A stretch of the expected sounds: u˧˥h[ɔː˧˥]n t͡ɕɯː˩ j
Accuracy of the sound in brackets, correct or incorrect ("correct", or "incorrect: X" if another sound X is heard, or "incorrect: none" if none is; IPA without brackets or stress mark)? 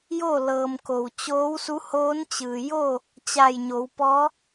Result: incorrect: oː˧˥